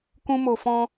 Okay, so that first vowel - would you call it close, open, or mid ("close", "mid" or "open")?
close